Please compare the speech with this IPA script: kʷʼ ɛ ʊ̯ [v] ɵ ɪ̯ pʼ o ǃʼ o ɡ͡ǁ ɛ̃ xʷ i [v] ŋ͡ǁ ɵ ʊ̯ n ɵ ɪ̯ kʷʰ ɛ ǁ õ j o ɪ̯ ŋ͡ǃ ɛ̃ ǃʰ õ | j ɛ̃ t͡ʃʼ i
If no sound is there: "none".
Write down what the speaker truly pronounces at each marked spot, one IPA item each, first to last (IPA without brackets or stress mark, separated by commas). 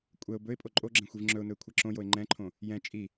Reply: b, v